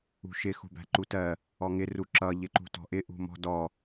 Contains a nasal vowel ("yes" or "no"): no